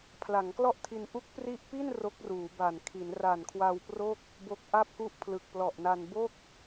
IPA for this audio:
pʰ l a˩˦ ŋ k l ɔ˥˩ ʔ tʰ i˧ n ʔ u˦˥ k̚ p r i˦˥ ʔ p i˥˩ n r o˦˥ k̚ r uː˩˦ b a˨˩ n kʰ i˩˦ n r a˨˩ n kʰ w a˧ w p r o˥˩ k̚ | b o˦˥ k̚ ʔ a˥˩ p̚ k u˥˩ ʔ pʰ l ɯ˨˩ k̚ p l ɔ˨˩ ʔ n a˧ n b o˥˩ k̚

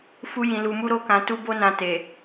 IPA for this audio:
f u˧ j ĩ˨ l u˨ m u˧ ɾ o˧ k ã˨ t u˧ b o˧ n ã˨ t e˨

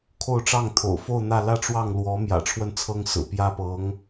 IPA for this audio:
kʰ o˥˧ ʊ̯ ʈ͡ʂ ɑ˥˩ ŋ t̪ʰ o̰˨˩ ʊ̯ f o˥˧ ʊ̯ n̪ ä˥˧ l ä˥˧ ʈ͡ʂ w ɑ˥˩ ŋ l w ɔ˧˥ m j ä̰˨˩ ʈ͡ʂʰ w ə˥˩ n t͡sʰ ɤ˥ ŋ s ɹ̩˨˩ p j ä˥˩ p ɤ˧˥ ŋ

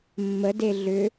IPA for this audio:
mː ə d e ɮ ʏ

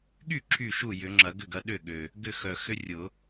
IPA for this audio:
ɠ y˥˩ ǁʰ y˥˩ ʃ u˥˩ j ʏ˨˩˦ ŋ͡ǁ ɐ˨˩˦ ɡ ʏ˥˩ ɡ ɐ˨˦ ɗ ʏ˥˩ ɠ ø˨˩ | ɡ ʏ˥˩ x œ˨˩ x ʏ˦ rʲ ʊ˨˩˦

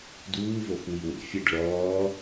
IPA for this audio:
d uː v o x w i w ḛ fʲ ɛ ɖ ɭ ɔː

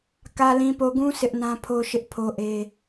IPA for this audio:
k ä˨ l ĩ˨ p o˨ ɡ ũ˦ s ɪ˦ ʔ n ã˦ pʰ o˦ ʃ ɪ˦ ʔ pʰ o˦ ʔ e˦

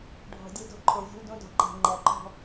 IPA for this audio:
ɖʱ ɔ̤˨ dʲ ɵ˦ d ɔ̤˦ ǃʰ o˨ vʲ o̤˦ l d õ˦ d ɔ̤˨ ǃ æ̤˨ ŋ͡ǃ æ˨ ǃ ɔ̤˦

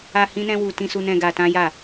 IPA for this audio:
a˧ h ĩ˦ n ɛ̃˦ w u˧ t ĩ˧ s u˧ n ɛ̃˧ ɡ a˧ t ã˦ j a˦˨

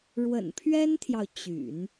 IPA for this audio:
ɻ w ə̰˨˩ n pʰ ɥ ɛ˥ n t̪ʰ j ɑ˨ ʊ̯ t͡ɕ y̰˨˩˦ n

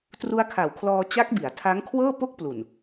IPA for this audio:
t r u˦˥ a̯ kʰ a˨˩ w kʰ l ɔː˧ t͡ɕ a˦˥ k̚ b i˩˦ a̯ tʰ a˦˥ ŋ kʰ w ɤː˥˩ p o˥˩ k̚ p l u˨˩ n

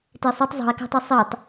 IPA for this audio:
t e sˤ u tˤ zˤ ṳ e̯ k æ̤ tˤ u sˤ i tˤ

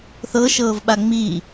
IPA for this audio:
θ ɤ ʃ ɤː v ɓ a ŋ͡m iː

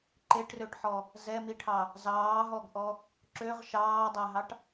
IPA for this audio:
ǃ e ʈ r ø ʈ ħ ɔ | z ɛ m i ʈʰ ɑ | z ɑː ɦ ɔ ɡ ʔ ɔ | ǁ ø ʁ ʃ ɑː dˤ ɛ ɦ ɑ ʈ

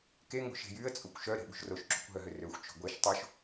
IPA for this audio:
k e ŋ o̤ ʃ e̤ j y ə̯ t͡sʼ o kʷ ʃ œ ɾ e̤ ɓ ṳ ʃ r o ʃ ǁ ṳ kʷ ɦ œ ɦ ø r ø xʷ t͡ʃ o̤ ɡʷ e ʃ tˤ o ʃ

